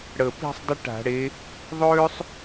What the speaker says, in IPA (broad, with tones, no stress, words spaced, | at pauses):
ɽə˨˩pi̤˥˧sˤ dˤə˥ʈa̤˧˩˧ɽe˨˦ | ðˤøː˥sˤ